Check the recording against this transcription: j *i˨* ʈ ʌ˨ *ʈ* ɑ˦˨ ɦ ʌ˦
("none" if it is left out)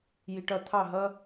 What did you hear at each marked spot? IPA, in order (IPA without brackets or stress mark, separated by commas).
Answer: i˨, t̪ʰ